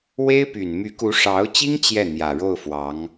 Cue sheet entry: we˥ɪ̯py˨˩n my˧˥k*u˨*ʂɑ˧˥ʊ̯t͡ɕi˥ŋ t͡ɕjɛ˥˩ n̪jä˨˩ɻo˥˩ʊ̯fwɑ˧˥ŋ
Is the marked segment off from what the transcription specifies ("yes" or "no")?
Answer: yes